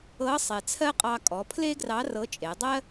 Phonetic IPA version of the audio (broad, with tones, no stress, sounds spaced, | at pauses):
ɤ˧˥ sˤ e˩ t͡sʰ ɜ˥ qʼ ɑ˧ kʼ ɔ˩˧ pʰ l e˥ ɡ r ɑ˧˥ r ɤ˧˥ t͡ʃʼ e˩˧ dˤ ɜ˥